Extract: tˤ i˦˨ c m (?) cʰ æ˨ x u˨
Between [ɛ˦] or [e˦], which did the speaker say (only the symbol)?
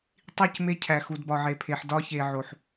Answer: e˦